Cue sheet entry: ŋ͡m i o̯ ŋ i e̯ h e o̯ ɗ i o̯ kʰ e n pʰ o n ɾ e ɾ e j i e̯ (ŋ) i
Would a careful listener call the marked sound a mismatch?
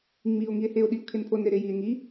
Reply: no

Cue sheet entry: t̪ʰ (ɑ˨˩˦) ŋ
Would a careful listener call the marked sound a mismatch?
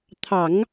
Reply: no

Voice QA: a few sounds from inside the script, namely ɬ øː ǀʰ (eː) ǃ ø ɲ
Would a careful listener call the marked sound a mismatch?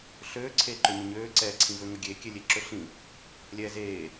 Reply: no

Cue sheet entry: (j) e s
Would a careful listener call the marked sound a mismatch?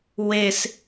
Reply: yes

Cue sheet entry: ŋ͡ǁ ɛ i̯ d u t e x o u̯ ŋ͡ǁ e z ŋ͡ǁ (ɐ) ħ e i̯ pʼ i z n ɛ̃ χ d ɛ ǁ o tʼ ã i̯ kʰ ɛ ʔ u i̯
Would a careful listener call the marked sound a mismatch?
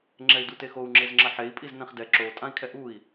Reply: no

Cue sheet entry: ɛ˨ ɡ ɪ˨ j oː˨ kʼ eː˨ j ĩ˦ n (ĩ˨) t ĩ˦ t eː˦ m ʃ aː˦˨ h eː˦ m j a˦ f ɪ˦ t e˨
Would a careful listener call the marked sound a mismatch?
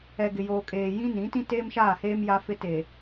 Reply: yes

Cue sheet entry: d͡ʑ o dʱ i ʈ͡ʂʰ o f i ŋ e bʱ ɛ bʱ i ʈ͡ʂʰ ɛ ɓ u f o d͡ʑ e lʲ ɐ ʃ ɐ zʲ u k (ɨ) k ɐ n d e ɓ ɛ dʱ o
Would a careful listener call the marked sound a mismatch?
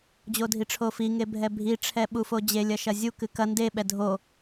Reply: no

